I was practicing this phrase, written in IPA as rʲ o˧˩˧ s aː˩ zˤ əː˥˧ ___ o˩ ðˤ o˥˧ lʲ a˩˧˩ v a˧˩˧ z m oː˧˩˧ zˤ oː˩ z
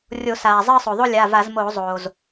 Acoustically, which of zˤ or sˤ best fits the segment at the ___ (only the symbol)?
sˤ